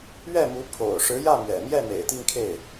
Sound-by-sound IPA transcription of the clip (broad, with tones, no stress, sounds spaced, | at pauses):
ɥ ɛ˥˩ m u˧˥ pʰ o̰˨˩ ʊ̯ ʂ ɻ̩˧˥ j ä˥˩ m ɥ ɛ̰˨˩ m j ɛ˥˩ m ḛ˨˩ ɪ̯ t̪ i˥˧ ŋ kʰ e˥˩ ɪ̯